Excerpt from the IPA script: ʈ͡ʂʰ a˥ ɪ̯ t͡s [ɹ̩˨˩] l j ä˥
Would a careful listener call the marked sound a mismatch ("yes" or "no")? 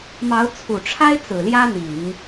no